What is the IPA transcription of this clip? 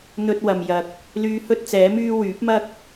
n̪ ɵ˧ t̚ w ɐ˨ m j ɐ˨ k̚ | l yː˧ h ɵ˥ t̚ t͡s ɛː˨˥ m yː˥ w yː˨˥ p̚ m ɐ˥ k̚

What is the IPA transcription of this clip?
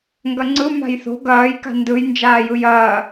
ŋ ɡ ɐ ŋ͡ǀ ɯ m a̤ j θ o̤ ɡ ɐː j k a̤ n d ɯ j n d͡ʒ aː j ɯ j ɐː

